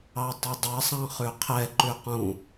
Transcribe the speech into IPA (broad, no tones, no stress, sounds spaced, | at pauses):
ɑ tˤ o dˤ ɛ sˤ ɑ̃ χ ʉ qʰ ɛ ǃ ʉ q ũ